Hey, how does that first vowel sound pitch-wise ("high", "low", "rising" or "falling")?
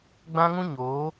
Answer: high